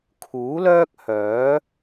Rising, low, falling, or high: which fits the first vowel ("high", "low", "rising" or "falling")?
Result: rising